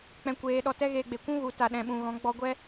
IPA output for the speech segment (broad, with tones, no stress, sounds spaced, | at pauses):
k͡p ɛ̃˧ kʷ eː˧ ɗ ɔ˧ t ɛ˦ ɣ eː˧ ɡ͡b e˨ kʷ ũ˦ ɣ u˨˦ t a˨ ɗ ɛ̃˨ ɓ ũ˨ ɣ ɔ̃˨˦ ɡ͡b ɔ˧ ɡʷ ɛ˦